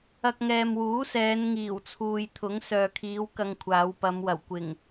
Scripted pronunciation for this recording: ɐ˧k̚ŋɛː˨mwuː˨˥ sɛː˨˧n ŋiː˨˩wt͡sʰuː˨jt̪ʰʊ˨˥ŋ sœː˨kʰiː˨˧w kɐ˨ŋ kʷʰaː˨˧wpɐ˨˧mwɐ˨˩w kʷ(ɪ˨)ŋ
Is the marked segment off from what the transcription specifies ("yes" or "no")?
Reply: yes